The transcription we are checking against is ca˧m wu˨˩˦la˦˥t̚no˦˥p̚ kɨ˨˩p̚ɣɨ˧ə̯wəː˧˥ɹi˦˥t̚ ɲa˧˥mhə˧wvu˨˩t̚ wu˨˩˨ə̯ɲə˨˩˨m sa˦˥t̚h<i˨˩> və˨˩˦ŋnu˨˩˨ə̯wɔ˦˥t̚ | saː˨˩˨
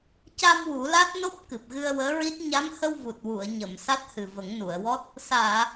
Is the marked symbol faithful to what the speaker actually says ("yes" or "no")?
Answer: no